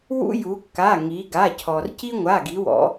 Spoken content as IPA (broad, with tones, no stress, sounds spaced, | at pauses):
w ṵ˦ j u˩˧ kː a˩˧˩ ŋ i˩˧ ɡ a˩˧˩ cʰ ɔ˩ r c i˦ ŋʷ a˩˧˩ ɡ i˩˧ w ɔ̰˩˧